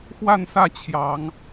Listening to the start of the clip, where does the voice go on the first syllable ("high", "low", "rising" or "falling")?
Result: falling